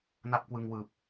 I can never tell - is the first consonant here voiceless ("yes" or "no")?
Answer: no